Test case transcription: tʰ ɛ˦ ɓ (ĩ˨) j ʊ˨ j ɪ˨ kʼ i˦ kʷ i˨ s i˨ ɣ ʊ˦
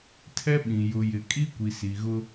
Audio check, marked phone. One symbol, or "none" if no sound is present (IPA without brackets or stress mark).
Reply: ĩ˨